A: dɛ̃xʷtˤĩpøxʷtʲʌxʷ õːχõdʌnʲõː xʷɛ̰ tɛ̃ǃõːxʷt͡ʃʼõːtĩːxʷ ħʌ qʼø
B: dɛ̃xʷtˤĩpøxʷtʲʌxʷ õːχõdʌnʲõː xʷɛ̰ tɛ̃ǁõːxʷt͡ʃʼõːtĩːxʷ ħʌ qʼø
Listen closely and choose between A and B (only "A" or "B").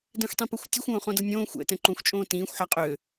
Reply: A